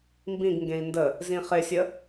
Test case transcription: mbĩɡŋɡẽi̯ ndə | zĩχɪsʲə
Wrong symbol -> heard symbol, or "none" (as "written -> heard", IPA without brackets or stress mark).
none